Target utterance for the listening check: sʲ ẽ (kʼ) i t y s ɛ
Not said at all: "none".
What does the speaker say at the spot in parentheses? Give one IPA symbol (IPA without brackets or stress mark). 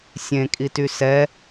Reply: kʼ